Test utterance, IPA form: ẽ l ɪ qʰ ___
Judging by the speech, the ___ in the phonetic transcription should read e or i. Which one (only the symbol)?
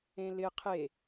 e